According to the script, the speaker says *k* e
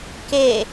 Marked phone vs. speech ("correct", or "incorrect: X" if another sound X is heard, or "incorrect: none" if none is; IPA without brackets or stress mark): correct